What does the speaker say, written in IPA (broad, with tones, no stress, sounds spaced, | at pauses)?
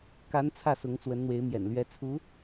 k a˧˥ n t͡sʰ ä˥˩ s ʊ˧˥ ŋ t͡s w ə˧˥ n n̪ w e˧˥ ɪ̯ m j ɛ̰˨˩ n l ɥ ɛ˧˥ t͡sʰ u˧˥